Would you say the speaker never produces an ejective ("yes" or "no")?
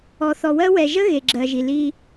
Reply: yes